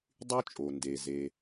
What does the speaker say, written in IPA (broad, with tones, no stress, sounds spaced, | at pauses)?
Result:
dˤ y˥ t͡ʃʼ o˩ n d e˩ z e˩